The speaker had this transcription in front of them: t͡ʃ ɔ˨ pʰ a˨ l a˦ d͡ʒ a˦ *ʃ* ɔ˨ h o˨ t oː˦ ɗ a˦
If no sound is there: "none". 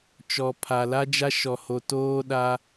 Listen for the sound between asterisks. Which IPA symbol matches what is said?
ʃ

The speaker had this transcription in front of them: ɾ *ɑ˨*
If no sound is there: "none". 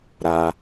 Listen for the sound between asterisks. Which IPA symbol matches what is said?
a˨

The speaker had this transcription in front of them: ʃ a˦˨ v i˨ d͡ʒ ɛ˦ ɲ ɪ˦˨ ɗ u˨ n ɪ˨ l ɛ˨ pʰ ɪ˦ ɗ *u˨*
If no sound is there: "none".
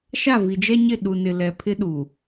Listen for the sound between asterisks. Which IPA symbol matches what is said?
u˨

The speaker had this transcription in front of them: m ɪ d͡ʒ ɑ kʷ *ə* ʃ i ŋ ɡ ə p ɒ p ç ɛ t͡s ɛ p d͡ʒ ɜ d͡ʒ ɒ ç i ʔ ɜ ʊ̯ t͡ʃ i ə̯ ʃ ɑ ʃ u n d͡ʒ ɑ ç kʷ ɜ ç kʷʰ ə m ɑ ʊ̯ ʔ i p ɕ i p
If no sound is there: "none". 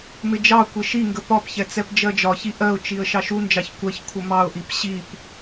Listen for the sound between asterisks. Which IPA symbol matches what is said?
ɪ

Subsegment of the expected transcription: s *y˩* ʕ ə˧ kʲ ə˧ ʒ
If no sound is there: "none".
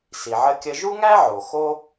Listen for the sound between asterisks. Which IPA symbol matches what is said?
i˩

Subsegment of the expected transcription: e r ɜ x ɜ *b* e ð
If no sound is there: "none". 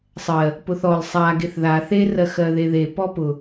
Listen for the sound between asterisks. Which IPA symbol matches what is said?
ð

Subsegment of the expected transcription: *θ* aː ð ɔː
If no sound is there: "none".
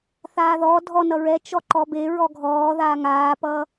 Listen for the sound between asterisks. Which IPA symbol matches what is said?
θ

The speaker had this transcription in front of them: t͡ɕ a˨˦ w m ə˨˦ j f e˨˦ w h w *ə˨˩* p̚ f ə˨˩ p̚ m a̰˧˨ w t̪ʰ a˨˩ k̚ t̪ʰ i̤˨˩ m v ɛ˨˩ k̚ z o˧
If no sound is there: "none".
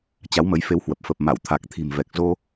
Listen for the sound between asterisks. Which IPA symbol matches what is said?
ə˨˩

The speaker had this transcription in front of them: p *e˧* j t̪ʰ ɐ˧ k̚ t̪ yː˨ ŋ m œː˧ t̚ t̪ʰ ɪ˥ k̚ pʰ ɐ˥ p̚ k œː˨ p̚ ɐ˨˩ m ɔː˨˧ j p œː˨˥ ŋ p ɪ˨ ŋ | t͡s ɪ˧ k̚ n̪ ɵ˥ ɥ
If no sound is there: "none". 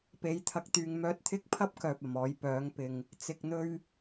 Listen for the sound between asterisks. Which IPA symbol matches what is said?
e˨˥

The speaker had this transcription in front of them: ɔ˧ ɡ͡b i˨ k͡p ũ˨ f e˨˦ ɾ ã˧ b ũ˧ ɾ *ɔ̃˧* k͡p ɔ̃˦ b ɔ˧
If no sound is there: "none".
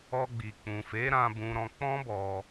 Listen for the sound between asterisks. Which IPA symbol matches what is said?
ɔ̃˧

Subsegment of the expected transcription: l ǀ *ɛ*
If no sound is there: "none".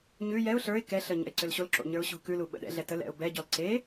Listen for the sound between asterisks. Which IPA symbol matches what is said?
e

